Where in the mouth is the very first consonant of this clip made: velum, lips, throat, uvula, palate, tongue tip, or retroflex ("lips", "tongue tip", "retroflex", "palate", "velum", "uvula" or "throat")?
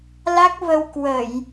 tongue tip